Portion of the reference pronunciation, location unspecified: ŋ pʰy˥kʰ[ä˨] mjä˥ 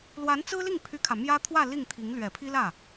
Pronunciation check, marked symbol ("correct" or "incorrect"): correct